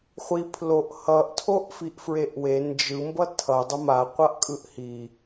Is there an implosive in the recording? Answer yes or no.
no